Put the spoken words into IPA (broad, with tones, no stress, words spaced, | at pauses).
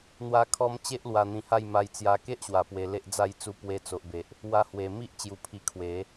n̪wa˦kʰɔ˦m t͡ɕe˦ʔ lwa˧n̪ĩ˧ha˥˧j ma˧j t͡sja˧ ke˦ʔɕwa˨˩ pwe˧le˦ʔd͡za˥˧jt͡su˦ pwe˧t͡so˨ʔbe˨ʔ | wa˦ hwe˨˩mi˦ʔ t͡ɕju˧pʰi˧ kʰwe˨˦